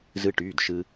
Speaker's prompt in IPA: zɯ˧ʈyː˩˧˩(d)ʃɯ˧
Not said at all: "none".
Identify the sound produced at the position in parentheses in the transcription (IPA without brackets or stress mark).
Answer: d